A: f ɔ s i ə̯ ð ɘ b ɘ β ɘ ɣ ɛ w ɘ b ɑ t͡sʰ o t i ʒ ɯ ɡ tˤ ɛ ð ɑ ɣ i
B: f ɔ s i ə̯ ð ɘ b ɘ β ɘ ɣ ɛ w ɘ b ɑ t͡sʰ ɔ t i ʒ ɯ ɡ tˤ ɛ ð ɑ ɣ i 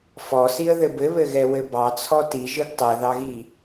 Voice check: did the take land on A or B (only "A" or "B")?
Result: B